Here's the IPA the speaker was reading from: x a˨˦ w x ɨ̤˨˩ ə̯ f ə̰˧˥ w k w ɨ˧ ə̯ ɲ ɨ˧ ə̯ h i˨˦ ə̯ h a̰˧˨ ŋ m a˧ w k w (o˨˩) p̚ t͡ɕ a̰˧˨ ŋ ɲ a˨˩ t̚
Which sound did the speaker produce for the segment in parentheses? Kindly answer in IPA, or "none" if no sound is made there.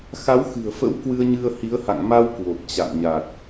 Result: o˨˩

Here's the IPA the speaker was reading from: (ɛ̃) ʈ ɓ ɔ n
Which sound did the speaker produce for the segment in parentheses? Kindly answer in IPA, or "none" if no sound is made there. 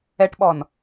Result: ɛ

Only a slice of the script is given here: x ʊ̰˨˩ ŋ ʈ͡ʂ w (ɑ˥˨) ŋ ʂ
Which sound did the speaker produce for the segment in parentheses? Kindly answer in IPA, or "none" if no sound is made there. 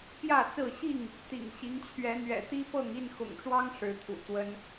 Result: ɑ˦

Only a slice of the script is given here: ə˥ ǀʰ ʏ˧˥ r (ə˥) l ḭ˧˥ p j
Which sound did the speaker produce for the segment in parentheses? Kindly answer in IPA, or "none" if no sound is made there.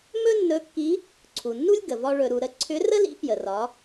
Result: ə˥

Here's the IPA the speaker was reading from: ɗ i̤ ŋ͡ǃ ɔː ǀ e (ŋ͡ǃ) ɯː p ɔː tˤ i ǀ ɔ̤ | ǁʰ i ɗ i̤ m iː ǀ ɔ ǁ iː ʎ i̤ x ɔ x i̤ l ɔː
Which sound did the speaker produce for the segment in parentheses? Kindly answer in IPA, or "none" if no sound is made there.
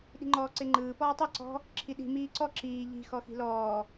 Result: ŋ͡ǃ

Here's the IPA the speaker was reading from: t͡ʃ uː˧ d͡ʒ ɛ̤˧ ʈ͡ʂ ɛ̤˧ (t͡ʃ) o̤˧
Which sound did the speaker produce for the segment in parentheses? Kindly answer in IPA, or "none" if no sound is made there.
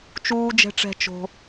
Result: t͡ʃ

